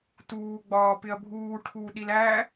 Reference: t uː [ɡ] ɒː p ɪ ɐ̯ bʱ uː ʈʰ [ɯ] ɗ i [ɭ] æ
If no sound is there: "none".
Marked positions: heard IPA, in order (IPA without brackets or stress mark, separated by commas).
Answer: ɡ͡b, u, l